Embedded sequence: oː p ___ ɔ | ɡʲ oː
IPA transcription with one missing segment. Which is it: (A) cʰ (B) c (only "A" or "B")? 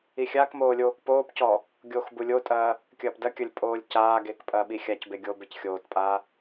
B